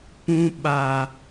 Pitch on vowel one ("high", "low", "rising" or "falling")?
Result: high